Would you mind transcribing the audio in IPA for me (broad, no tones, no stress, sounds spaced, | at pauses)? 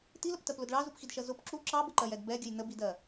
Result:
t i l ə p t ɜ p l ʊ d ɭ ɑ z u p x i d ʃ ɜ z ʊ p ǁ u ǁ ɑ b ə ǃ ɜ j ɛ d b ɛ ɡʲ ə j n ə b i d ɜ